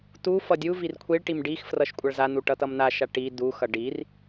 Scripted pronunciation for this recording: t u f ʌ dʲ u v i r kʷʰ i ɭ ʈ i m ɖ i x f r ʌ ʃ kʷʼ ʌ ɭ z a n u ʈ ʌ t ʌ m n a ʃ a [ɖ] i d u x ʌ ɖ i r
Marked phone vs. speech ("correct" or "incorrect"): incorrect